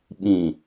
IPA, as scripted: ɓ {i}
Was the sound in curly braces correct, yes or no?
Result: no